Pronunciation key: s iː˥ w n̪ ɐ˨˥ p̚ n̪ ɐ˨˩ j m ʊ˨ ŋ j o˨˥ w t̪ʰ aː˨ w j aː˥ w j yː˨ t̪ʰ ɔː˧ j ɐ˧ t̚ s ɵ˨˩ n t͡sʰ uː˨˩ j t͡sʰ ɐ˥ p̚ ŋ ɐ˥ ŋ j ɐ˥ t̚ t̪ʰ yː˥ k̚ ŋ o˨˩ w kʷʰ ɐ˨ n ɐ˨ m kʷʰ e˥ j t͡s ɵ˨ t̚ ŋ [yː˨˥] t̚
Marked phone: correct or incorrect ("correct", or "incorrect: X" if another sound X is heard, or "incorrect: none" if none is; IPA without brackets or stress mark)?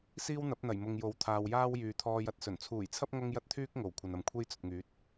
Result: correct